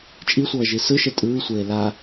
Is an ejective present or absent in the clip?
present